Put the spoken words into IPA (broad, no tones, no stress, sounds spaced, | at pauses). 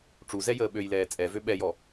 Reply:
ʈ͡ʂ u z ɛ j əː ɓ ø j l ɛː t͡sʼ ɛ v ø ɓ ɛ j ɔ